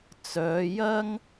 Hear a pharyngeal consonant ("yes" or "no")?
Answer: no